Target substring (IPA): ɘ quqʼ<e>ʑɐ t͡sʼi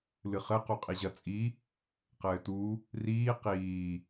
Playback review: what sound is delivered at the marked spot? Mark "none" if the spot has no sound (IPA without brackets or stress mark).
i